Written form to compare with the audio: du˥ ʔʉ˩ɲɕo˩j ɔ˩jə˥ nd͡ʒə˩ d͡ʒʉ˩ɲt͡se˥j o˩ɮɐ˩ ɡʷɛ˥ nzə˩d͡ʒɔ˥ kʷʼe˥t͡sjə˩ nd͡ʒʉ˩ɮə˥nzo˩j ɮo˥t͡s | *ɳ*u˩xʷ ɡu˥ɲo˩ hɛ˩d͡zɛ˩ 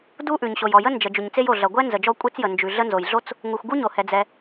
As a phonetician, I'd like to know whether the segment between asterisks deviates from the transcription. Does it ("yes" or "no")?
yes